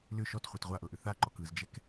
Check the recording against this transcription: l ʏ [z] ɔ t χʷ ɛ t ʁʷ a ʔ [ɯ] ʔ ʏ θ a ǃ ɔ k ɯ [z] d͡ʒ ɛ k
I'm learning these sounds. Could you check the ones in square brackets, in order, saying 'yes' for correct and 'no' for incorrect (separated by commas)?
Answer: no, no, yes